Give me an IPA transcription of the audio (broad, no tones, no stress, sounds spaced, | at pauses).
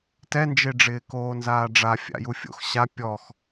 t ɛ n d͡ʒ e ɖ͡ʐ ɪː k oː n z aː ɖ͡ʐ a fʲ a̰ j u fʲ o̰ x ɕ a pʲ ɔ x